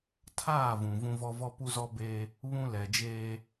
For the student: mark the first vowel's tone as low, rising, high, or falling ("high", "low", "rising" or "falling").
falling